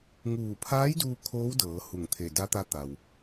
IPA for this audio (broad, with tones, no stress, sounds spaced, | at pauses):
ŋ uː˧˩ pʰ aː˧˥ j d uː˧ kʰ oː˧˥ w d ɤː˩˧ h u˧˩ ŋ t̪ʰ e˧˩ d a˧˥ t̪ a˧˥ t̪ a˩ w